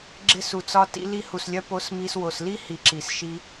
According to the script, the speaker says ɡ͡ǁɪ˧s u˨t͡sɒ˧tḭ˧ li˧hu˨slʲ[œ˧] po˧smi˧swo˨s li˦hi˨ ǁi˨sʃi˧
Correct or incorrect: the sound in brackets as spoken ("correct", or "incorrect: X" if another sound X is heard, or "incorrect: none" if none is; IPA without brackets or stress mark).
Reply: correct